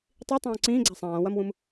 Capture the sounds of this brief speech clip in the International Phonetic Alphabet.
tˤ i tˤ õː ǀ ĩː ɡ͡ǀ a sˤ ãː w ɐ m w ũ m

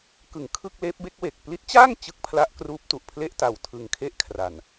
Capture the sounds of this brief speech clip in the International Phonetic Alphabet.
k ɯ˨˩ ŋ kʰ ɯ˥˩ k̚ l eː˦˥ p̚ b e˦˥ k̚ w e˨˩ k̚ p l i˦˥ t̚ t͡ɕ aː˥˩ ŋ t͡ɕ ɯ˦˥ k̚ pʰ l a˦˥ ʔ k r uː˦˥ p̚ t u˨˩ ʔ pʰ l e˥˩ ʔ t a˧ w tʰ ɯ˧ ŋ kʰ e˥˩ ʔ kʰ r a˨˩ n

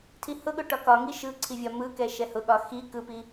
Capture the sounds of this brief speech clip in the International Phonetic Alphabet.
tʰ i h ʊ ɠ ʊ ʈ ɒ k ɒ ŋ i ʃ ɯ ǀʰ i vʲ ɒ m ɯ k ɛ ʃ ɛ h ʊ ɠ ɒ x i k ɯ p i

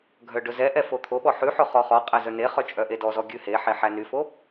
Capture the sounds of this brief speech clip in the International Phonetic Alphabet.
ɡʱ œ ɖ ɵ z ɛ ʔ ɛ f o t̪ʰ o ɓ ɔ ħ ʉ ħ ɵ χ ɔ χ ɔ qʼ æ z œ n e χ œ t͡ʃʼ œ ʔ e d ɔ z ɔ ɡʲ ʉ h e ħ e ħ æ n y f o

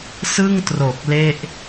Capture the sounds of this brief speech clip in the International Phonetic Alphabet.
s ɯ˥˩ ŋ t r o˨˩ k̚ l e˥˩ ʔ

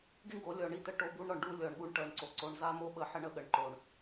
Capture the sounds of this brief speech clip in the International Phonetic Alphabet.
ɡ i˦ ɳ ɡ o˨˦ lʲ ɔ˨ ɳ i˦˨ t ə˦ ʈ o˦ b u˦ ɳ ɾ ɔ˨ ɳ ɖ u˦ lʲ ɔ˨ ɳ ɠ u˦ ɳ ʈ ɤ˨ ɳ ǀ o˨ ǀ o˨ ɳ z a˦ m o˦ ɓ ə˨ ħ ə˦ ɳ ə˦ ɠ ə˨ ɳ ǃ o˨ ɳ

